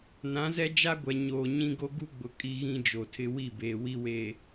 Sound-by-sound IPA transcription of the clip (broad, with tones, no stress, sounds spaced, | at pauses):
n ã˨˦ z ɛ˦ d͡ʒ a˦ ɡʷ ɛ˨ ɲ oː˨ ɲ ĩ˦ ɡ o˦ ɡ u˦ ɡ͡b ʊ˨ kʼ i˦ ɣ ĩ˦ d͡ʒ o˨ tʰ ɪ˦ w i˦˨ b eː˨ w i˦ w e˨